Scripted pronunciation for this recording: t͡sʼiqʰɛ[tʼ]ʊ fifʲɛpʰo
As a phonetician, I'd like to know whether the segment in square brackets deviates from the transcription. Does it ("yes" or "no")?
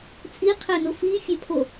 yes